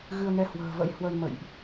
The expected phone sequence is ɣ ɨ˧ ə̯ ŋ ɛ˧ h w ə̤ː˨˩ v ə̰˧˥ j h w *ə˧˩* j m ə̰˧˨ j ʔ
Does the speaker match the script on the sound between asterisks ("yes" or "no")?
no